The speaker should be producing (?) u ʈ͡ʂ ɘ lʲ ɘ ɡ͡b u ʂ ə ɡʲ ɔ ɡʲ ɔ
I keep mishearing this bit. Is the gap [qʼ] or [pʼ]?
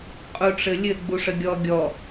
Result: qʼ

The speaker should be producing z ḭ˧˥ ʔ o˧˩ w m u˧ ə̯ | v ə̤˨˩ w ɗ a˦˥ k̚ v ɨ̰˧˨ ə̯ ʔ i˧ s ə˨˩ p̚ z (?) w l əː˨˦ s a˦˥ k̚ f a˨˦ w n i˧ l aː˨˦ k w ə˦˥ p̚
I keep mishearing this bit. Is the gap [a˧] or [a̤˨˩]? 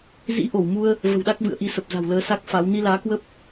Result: a̤˨˩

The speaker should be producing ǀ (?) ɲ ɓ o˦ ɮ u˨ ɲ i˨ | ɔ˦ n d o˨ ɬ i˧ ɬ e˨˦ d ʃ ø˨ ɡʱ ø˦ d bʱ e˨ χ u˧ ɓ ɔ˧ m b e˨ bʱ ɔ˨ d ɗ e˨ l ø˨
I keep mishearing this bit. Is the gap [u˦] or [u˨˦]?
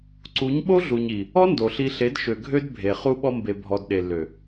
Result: u˨˦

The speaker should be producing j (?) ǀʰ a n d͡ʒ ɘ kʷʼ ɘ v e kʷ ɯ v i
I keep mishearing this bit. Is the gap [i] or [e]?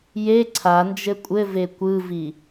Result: e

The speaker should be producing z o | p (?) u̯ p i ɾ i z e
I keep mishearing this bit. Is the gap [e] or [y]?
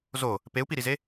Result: e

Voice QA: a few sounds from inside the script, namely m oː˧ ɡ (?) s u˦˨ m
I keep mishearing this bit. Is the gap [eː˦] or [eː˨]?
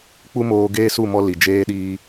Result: eː˦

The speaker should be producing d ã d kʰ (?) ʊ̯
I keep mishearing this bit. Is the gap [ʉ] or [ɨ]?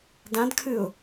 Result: ɨ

